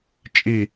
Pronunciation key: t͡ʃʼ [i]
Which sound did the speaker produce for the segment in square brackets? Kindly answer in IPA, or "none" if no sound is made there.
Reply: i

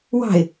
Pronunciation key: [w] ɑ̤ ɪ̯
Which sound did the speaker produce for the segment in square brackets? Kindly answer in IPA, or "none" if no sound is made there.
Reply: w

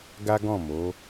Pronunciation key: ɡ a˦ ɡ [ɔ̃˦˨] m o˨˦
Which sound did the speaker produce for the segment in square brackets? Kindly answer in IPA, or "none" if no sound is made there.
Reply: ɔ̃˦˨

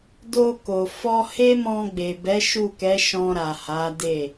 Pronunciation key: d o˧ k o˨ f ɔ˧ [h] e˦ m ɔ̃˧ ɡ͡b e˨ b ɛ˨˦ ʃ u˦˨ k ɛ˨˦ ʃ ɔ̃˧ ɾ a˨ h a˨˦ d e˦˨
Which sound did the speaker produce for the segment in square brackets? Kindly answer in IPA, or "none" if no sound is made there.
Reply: h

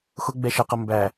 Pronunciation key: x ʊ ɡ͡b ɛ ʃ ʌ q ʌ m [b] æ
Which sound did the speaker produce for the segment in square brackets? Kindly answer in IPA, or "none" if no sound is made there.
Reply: b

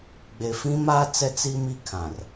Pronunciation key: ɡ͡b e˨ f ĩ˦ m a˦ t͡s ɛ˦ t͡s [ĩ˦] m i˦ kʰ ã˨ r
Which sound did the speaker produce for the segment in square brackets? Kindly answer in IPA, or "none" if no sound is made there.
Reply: i˦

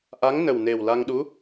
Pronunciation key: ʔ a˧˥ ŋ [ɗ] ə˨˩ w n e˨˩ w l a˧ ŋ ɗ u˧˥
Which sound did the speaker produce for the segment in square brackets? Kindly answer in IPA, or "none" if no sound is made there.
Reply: n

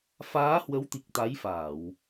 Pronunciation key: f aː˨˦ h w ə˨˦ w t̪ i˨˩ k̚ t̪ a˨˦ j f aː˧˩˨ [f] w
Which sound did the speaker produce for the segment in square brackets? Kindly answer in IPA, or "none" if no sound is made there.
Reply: none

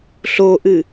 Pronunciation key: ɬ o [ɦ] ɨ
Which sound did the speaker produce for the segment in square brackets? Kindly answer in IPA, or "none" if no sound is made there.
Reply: ʔ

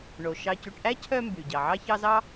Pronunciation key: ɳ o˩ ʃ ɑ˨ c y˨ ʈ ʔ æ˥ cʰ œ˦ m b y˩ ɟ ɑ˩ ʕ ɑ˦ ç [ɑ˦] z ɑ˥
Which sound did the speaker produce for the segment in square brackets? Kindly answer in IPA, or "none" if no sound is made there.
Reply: ɑ˦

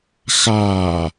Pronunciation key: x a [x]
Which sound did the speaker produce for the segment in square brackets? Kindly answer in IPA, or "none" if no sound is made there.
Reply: none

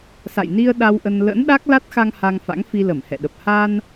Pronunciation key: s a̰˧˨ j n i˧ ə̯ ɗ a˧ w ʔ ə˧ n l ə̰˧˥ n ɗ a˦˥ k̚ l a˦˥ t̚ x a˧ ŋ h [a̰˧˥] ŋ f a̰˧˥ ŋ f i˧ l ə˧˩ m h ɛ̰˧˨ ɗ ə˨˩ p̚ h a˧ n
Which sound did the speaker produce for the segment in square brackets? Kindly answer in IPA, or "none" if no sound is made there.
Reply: a˧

